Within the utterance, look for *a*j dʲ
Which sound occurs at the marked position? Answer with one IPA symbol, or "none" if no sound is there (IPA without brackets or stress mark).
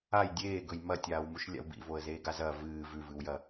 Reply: a